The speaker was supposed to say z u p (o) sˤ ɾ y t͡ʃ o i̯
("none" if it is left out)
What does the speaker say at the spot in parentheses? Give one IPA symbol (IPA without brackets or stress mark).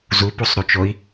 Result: u